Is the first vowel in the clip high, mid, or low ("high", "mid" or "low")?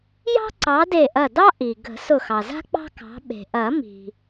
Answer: low